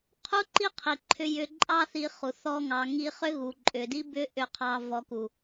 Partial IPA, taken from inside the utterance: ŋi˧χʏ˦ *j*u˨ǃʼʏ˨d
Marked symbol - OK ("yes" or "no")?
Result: no